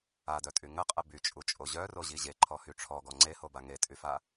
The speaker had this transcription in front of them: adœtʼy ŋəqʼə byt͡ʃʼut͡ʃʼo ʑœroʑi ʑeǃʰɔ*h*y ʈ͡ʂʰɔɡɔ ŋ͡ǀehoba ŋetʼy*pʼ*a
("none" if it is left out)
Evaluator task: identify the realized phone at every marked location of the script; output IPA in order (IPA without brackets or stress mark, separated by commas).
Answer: h, f